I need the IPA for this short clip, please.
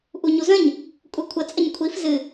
ʔ u ɲ u z ə̃ ɲ | kʷʼ ɛ kʷʰ ə t͡sʼ ə ɲ kʷʰ i f z ɨ

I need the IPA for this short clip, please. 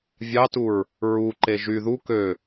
vʲ ɑ t u ɹ | ɹ u ǃ e ʒ y ð u k ø

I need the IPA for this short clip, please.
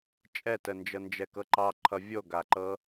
t͡ʃʼ ɛ t ə n d͡ʒ ɤ n d͡ʒ ɛ k ɤ ǃ ɑ ǃʰ ʌ vʲ o ɡ a ǃ ɤ

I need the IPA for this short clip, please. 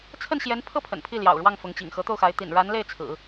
t͡sʰ ə˥˩ n ɕ j ɛ˧˥ n pʰ ɤ˥ pʰ ə̰˨˩ n pʰ i˥˩ l j ɑ̰˨˩ ʊ̯ ɻ w ɑ˥˩ ŋ f ʊ˧˥ ŋ t͡ɕ ḭ˨˩ ŋ x ɤ˧˥ t̪ o˥˩ ʊ̯ x a˧˥ ɪ̯ t̪ ḭ˨˩ n ɻ a˧˥ n l e˥˩ ɪ̯ t͡sʰ ɹ̩˨˩˦

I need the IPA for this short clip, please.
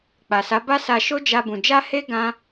k͡p a˨ s a˨˦ b a˦ s a˧ ʃ o˦ d͡ʒ a˧ b ũ˨ d͡ʒ a˧ h e˧ ɡ ã˦

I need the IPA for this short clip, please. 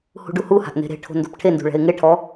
h ṳ ɖ u h u h a̤ ʔ n e̤ ɾ e̤ ʈʰ o̤ n d o̤ p ʈʰ e n d ṳ ɭ ɛ̤ ɪ̯ ŋ e ʈʰ ɔ

